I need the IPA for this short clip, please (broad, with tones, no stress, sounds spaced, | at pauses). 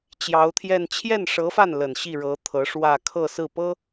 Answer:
t͡ɕ j ɑ˧˥ ʊ̯ t̪ʰ j ɛ˥˧ n t͡ɕʰ j ɛ˥˩ n ʂ ɤ˧˥ f a˥˩ n l ə˨˩ n ɕ i˥˩ ɻ ɤ˧˥ t̪ʰ ɤ˧˥ ʂ w ä˥˧ kʰ ɤ˥˧ s ɹ̩˥˩ p ɤ˥